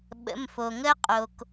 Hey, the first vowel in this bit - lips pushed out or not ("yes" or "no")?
no